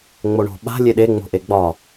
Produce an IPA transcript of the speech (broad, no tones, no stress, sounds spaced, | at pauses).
ŋ͡m o ɳ o̤ ɓ a̤ lʲ e ɗ e ŋ͡m o̤ ʔ e ɡ͡b ɒ